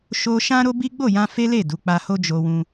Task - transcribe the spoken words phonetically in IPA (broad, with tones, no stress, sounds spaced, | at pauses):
ʃ o˧ ʃ ã˦ ɾ o˦ b i˦ ɡ͡b o˦˨ j ã˧ f e˦ l e˦˨ d u˨˦ k͡p a˧ h o˦ d͡ʒ o˧ w ũ˧